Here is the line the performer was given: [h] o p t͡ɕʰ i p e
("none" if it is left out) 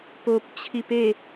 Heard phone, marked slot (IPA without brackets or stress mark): p